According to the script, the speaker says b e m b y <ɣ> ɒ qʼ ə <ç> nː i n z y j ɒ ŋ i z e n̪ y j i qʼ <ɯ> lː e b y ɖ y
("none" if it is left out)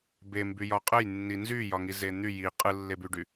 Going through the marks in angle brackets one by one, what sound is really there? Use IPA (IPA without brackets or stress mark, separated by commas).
j, j, ɯ